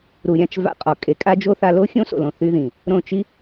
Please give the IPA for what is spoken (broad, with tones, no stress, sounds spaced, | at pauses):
ɾ u˨ ɾʲ ã˧ t͡ʃ v a̰˧ qʼ ɔ˨ kʼ e˨˦ kʼ a˦ d͡ʒ o˦ θ a˧ l o˦ xʲ õ˦ s o̰˨ l õ˧ θ y˦ ð ĩ˨ | ɾ õ˦˨ t͡ʃ i˦